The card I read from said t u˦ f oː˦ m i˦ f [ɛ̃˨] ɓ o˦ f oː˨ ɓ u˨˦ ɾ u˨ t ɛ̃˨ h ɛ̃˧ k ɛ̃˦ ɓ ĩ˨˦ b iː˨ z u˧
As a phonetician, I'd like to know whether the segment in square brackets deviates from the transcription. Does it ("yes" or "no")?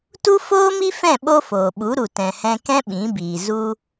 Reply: yes